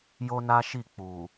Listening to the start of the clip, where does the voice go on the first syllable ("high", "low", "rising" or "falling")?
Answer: high